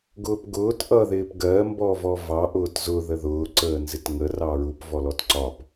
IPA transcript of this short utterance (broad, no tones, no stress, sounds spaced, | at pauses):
ɡ ʊː p ɡ ʊː t ʔ ʌ ð ɪː p ɡ ɜ m b ɔ v ɔ v ɑ ʔ ʊː t z ʊ ð ə ð ʊː ǀ əː n z ɪ t ŋ ə r ɑ ɹ u p v ɔ l ɔ t ǀ ɒ p